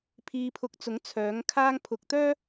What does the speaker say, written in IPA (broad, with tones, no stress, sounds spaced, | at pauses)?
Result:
pʰ iː˧ pʰ ʊ˧ k̚ t͡s ʊ˨˥ ŋ t͡sʰ œː˨˥ ŋ kʰ aː˥ ŋ pʰ ʊ˨ k̚ t̪ œː˥